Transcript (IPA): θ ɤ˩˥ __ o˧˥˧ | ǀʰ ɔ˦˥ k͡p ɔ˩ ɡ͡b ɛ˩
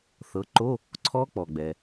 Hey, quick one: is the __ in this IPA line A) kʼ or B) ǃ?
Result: B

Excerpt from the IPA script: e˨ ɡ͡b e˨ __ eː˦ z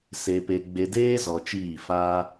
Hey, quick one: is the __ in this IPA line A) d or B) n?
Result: A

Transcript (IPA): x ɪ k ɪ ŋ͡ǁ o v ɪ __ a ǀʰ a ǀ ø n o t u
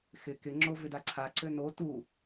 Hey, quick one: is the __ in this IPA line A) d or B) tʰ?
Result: A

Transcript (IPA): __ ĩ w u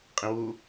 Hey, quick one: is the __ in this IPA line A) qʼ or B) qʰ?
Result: A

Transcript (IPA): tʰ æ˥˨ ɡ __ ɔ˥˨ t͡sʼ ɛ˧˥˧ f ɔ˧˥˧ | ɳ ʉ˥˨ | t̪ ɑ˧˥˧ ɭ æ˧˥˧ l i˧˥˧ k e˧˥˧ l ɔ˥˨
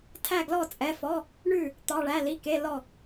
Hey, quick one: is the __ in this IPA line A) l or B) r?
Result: A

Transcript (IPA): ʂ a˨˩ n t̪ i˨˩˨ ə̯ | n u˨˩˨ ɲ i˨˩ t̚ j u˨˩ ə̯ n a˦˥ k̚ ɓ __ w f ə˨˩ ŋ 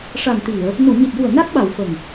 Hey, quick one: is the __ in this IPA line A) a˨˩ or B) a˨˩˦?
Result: A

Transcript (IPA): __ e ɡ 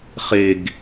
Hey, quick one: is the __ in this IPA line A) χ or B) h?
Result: A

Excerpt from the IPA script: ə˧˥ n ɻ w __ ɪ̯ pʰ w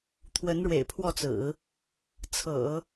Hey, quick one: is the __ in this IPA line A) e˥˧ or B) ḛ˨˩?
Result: B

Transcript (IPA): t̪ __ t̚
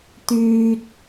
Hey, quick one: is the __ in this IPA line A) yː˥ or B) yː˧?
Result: B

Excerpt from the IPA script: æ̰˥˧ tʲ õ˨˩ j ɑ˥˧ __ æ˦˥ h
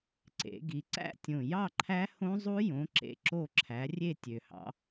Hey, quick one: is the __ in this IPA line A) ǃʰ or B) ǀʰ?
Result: A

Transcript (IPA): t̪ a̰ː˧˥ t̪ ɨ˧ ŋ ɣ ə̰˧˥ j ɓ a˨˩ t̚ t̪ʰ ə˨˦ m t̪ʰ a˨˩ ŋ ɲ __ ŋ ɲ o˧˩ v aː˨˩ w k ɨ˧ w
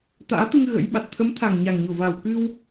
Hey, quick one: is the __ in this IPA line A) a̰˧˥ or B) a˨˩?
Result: B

